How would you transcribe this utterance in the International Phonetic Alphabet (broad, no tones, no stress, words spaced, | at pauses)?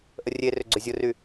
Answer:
ʔərʲerʏ ɡ͡ǀʏzʲʊry